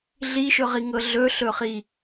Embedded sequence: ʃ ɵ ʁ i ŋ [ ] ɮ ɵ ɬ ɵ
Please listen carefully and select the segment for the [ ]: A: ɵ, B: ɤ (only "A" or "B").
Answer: B